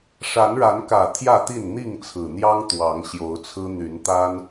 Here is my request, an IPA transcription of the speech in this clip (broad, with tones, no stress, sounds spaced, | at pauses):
ʂ a˨˦ n ɻ a˨˦ n k ä˨˩ t̪ʰ j ä˥˨ t̪ i˥˨ n n̪ i˥˨ ŋ t͡sʰ ɹ̩˨˩ n̪ j ɑ˦ ŋ t̪ w ɑ˨˦ ŋ ɕ j o˨˦ ʊ̯ t͡sʰ ɹ̩˦ n̪ y˨˦ n t̪ a˦ n